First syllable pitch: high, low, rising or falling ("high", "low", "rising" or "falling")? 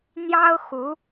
high